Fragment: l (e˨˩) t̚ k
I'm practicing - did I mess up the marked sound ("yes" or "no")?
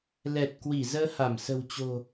yes